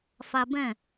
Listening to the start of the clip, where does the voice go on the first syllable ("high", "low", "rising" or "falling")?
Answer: high